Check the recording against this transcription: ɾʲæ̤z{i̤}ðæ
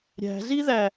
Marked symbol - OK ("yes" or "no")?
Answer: no